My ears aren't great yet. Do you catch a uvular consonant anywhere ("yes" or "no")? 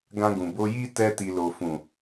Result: no